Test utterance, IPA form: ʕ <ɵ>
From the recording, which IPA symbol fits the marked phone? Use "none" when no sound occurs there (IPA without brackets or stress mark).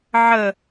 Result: ə